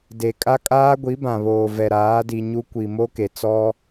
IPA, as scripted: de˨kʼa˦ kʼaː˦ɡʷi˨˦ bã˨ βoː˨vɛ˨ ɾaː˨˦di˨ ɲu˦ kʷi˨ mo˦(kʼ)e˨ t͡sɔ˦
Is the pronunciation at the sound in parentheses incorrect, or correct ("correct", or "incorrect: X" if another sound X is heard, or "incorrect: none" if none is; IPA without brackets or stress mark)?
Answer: incorrect: k